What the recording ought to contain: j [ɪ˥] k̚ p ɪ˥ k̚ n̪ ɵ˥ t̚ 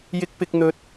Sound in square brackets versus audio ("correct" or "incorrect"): correct